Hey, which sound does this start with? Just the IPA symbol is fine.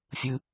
fʲ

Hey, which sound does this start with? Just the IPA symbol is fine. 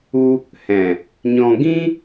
u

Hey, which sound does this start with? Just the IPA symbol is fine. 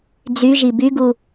d͡z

